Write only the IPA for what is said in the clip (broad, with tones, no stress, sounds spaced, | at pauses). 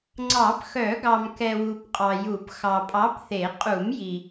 ŋ͡ǀ ɑ˨˩˦ p x œ˨˩˦ ɡ ɑ˨ m k ɛ˨ w u˨ p qʼ ɑ˨ j u˨˩˦ p x ɑ˨ pʼ ɑ˨˥ p θ e˨˩˦ qʼ u˨˩˦ m j i˨